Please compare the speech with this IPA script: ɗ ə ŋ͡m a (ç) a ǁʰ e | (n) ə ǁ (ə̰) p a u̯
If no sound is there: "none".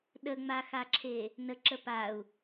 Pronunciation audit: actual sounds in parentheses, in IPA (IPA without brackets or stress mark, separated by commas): x, n, ə